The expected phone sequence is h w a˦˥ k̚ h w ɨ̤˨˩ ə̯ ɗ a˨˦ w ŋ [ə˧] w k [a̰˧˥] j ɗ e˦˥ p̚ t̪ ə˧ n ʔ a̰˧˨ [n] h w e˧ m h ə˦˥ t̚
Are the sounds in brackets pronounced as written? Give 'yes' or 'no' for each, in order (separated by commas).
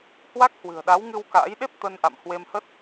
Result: no, no, no